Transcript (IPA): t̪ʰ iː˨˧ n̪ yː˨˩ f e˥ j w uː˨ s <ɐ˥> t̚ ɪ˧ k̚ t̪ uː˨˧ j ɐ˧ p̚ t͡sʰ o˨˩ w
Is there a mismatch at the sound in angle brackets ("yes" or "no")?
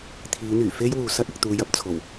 no